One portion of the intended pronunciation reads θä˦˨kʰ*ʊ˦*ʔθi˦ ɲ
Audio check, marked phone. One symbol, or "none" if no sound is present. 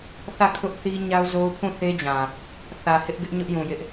ʊ˦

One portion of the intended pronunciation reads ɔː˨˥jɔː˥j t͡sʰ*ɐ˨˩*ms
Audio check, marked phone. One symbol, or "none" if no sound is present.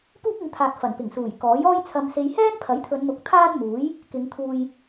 ɐ˨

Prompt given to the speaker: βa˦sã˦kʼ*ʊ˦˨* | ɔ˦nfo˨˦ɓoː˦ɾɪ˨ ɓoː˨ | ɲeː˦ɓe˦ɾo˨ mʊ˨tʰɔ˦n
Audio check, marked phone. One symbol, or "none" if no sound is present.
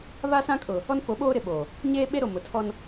ʊ˨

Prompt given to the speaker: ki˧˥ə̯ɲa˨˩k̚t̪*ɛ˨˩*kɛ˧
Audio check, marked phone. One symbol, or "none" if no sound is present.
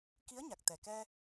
ɛ˨˩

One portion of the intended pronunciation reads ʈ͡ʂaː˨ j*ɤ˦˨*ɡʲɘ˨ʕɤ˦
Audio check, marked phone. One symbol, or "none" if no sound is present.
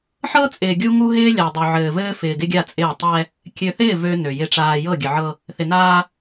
ɤ˦˨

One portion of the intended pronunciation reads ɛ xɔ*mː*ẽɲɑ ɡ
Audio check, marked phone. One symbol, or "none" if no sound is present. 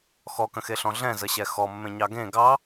mː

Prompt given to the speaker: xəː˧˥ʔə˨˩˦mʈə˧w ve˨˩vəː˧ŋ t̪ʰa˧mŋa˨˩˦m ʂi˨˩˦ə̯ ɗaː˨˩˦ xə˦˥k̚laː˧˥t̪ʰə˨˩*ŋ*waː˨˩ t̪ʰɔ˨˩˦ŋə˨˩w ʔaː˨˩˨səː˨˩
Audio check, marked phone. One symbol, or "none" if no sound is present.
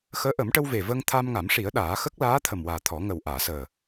m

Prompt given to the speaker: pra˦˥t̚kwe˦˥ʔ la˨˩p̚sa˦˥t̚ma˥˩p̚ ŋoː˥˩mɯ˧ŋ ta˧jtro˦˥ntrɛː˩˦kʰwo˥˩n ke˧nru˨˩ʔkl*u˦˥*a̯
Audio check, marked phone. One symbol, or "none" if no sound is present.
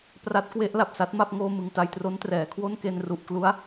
u˦˥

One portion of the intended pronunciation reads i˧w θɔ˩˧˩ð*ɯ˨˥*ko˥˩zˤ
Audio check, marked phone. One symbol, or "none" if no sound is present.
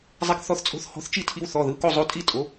ɯ˩˧˩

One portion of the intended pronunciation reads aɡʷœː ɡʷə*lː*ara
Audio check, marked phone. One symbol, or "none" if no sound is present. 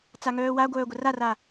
r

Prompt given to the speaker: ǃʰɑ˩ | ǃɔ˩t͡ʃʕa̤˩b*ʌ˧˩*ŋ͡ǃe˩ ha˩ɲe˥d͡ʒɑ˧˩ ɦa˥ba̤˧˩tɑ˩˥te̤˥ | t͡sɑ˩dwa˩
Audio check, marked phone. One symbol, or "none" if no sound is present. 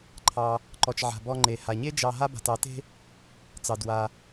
ɔ˧˩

